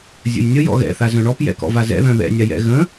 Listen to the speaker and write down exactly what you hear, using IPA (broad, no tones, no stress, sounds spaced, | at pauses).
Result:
zʲ ə̰ j nʲ ə j ɔ̰ ɣ ɛ̰ θ a z œ̃ ɳ ɔ p j ɛ̰ k ɔ̰ v a z ɛ̰ ð œ̃ ð ɛ̰ nʲ a j ɛ̰ ɣ ə̃